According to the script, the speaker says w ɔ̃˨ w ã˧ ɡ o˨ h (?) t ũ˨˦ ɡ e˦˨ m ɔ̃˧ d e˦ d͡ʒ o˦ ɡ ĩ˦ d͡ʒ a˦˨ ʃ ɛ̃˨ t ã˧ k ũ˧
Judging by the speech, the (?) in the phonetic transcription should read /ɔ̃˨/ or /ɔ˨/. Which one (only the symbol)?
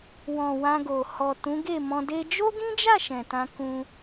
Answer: ɔ˨